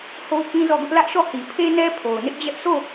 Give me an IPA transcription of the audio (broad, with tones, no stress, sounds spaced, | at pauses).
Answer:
h o˦ ʊ̯ k ĩ˦ z ɔ˦˨ ɡ ʊ˦ ʔ l ä˦ ʔ ʃ ɔ˦˨ h i˨ pʰ e˦ n ɛ˦ pʰ o˨ ʊ̯ n ɪ˦ ʔ d͡ʑ ɛ˦ ʔ s o˦˨